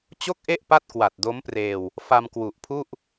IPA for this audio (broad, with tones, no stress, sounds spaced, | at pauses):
t͡ɕ o˥˩ k̚ ʔ e˥˩ ʔ p a˥˩ t̚ k w a˨˩ t̚ d o˦˥ m p r eː˧ w | f a˧ m k w u˨˩ ʔ pʰ u˥˩ ʔ